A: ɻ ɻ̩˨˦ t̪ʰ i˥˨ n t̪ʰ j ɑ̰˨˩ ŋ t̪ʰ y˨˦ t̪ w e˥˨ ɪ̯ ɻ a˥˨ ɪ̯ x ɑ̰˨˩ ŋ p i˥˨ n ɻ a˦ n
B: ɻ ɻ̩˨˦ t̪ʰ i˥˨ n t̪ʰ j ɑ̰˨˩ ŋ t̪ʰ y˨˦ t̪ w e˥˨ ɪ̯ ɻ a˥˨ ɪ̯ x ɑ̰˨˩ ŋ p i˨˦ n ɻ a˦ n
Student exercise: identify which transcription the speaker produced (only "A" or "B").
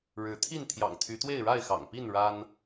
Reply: A